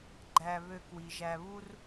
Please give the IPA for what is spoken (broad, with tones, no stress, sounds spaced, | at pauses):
ɡ͡ǃ æ˨ β ø˨ k w i˩ ʒ æ˨ β u˥ r